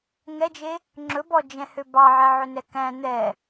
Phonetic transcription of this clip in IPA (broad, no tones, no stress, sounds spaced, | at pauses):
ŋ ɛ d͡ʒ e | ŋ͡ǁ ɵ b ɔ d͡ʒ ɛ̃ h ø b ɑ ʕ ɛ ʕ ɵ n ɛ k æ̃ n̪ ɛ